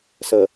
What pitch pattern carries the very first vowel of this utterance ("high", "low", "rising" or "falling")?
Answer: low